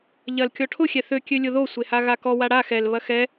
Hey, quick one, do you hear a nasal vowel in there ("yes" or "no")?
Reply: no